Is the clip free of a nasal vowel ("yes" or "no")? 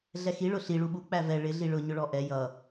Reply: yes